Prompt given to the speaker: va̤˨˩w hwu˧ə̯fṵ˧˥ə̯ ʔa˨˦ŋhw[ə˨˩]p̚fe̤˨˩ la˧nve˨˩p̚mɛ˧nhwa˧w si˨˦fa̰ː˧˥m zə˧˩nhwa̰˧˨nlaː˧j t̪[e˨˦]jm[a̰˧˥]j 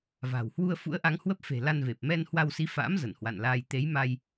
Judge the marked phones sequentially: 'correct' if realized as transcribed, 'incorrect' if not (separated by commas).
incorrect, correct, incorrect